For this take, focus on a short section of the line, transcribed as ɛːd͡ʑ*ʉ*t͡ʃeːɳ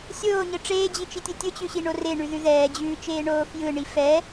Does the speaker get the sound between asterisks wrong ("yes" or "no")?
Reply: yes